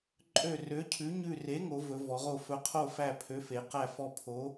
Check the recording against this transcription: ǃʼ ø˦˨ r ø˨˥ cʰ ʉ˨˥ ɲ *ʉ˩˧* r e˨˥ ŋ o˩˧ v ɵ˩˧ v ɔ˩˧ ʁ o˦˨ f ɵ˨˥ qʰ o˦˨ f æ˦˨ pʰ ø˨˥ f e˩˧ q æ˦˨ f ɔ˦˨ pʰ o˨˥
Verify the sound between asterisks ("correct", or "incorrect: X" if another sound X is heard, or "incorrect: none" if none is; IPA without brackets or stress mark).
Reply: incorrect: ʉ˦˨